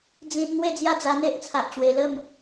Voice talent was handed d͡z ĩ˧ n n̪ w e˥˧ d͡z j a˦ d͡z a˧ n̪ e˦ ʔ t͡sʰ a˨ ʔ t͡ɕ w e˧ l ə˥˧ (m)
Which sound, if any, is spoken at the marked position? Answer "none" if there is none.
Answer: m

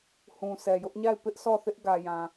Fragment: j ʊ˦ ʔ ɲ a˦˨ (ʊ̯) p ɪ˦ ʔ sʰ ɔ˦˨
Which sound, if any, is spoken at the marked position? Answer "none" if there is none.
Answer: ɪ̯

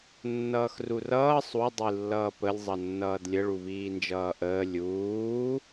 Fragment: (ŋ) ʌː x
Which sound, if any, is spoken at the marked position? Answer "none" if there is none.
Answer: nː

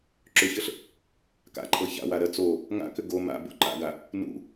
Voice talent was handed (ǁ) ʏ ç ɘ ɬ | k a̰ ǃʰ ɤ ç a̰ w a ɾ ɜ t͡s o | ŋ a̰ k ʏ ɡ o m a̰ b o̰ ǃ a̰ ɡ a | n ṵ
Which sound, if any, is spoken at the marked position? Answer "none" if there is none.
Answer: ǁ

